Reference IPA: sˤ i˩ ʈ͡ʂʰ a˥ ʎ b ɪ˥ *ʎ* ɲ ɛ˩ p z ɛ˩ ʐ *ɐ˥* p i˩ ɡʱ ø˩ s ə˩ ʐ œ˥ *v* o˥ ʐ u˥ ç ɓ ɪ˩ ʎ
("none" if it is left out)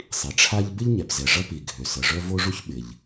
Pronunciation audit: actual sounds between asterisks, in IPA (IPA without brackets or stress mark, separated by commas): ʎ, ɐ˥, v